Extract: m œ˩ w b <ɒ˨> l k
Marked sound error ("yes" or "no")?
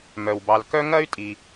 yes